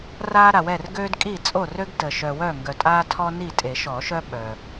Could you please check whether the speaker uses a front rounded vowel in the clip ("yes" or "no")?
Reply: yes